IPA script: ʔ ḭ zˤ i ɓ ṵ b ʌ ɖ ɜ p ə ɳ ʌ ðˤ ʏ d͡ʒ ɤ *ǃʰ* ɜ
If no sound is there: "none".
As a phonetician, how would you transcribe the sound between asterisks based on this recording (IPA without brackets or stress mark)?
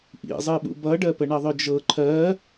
ǃʰ